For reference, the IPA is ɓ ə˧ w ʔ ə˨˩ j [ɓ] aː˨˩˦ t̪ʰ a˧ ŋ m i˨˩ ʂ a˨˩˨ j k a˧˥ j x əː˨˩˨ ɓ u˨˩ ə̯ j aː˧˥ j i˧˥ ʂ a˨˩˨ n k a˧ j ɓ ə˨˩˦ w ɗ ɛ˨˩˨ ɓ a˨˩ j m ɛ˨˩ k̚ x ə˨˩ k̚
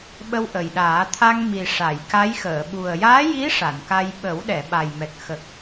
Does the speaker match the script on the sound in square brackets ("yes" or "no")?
no